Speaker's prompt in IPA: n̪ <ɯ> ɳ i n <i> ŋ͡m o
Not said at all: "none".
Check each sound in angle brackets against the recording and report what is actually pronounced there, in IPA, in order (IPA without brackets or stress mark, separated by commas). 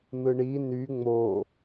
ɯ, y